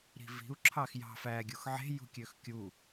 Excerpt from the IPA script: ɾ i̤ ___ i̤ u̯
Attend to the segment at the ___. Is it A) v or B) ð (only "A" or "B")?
A